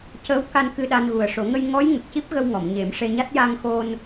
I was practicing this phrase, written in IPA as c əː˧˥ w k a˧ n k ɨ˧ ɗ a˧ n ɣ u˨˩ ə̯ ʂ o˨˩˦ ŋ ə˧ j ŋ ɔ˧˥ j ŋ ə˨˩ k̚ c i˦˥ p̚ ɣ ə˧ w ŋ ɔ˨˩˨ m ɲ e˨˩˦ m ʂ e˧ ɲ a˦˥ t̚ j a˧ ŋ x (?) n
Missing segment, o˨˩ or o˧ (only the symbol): o˧